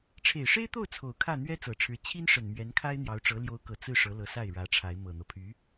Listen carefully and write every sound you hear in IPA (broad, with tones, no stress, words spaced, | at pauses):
ʈ͡ʂʰe˨˩ɪ̯ʂe˥ɪ̯t̪o˥˩ʊ̯ t͡sʰo˨˩ʊ̯ kʰä˥˩ n̪ɥɛ˥t͡sɤ˨˩ʈ͡ʂʰɻ̩˧˥ t͡ɕʰi˥nʂə˨˩n mɥɛ˧˥nkʰa˥ɪ̯n̪jɑ˧˥ʊ̯ʈ͡ʂɤ˧˥ ljo˧˥ʊ̯kɤ˨˩ t͡sɹ̩˥˩ ʂɤ˧˥lɤ˧˥sa˥˩ɪ̯ ɻä˧˥ʈ͡ʂʰa˧˥ɪ̯ mɤ˨˩n̪ɤ˦ pʰy˧˥